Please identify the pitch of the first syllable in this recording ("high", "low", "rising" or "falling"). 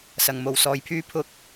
low